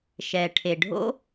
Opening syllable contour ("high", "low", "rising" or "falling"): low